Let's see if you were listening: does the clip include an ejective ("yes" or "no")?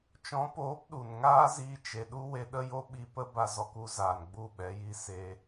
no